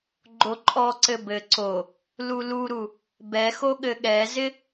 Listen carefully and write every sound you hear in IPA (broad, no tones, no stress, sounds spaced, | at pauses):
ɡ͡ǃ o ǃʼ ɔ ǀ ɘ b ɘ ǀ o | l u l u ɾ u | b ɛ x o ɠ ɘ ɠ ɛ z ɪ